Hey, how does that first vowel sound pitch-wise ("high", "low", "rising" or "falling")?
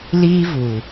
high